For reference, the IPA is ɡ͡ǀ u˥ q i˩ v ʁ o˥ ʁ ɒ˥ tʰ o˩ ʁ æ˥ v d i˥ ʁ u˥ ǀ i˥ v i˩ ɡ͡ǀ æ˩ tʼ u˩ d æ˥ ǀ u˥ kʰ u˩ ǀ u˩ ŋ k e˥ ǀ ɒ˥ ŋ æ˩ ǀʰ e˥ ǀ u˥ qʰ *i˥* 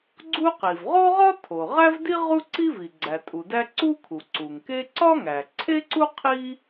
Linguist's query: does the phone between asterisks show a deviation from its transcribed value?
no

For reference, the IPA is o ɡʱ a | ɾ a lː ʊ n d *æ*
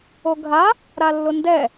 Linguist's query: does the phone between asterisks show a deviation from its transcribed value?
yes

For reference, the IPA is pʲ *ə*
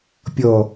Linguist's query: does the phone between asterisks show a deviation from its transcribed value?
yes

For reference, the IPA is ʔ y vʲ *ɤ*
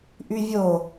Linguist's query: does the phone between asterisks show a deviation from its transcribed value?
yes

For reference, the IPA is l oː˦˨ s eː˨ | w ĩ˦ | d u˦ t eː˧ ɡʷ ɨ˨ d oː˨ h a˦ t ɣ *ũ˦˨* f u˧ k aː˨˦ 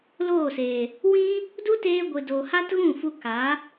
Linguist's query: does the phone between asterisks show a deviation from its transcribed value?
no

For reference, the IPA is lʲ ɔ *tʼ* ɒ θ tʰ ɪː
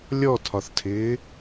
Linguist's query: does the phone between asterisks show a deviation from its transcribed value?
yes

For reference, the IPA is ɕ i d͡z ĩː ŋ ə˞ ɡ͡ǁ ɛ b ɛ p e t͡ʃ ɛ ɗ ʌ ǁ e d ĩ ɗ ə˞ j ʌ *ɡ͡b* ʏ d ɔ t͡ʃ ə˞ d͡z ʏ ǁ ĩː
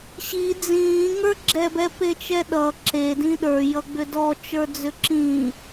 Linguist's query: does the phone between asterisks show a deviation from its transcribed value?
no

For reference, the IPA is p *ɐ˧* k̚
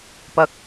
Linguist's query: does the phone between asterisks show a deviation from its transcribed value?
no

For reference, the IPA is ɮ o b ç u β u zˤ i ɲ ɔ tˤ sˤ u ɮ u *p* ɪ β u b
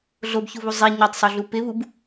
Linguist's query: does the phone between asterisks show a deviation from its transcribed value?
no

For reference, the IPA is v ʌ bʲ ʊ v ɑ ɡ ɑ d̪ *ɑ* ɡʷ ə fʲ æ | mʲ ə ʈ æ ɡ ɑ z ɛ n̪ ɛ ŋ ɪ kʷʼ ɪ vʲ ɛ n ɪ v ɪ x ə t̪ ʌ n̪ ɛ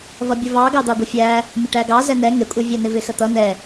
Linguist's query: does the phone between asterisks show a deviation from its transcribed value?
no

